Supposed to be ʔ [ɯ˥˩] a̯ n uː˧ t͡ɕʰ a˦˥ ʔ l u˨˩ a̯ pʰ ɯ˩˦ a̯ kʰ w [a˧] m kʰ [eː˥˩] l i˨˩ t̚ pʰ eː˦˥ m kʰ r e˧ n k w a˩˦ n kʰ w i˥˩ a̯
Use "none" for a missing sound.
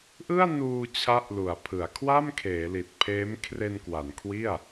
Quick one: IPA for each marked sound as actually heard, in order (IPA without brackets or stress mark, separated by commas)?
ɯ˥˩, a˥˩, eː˩˦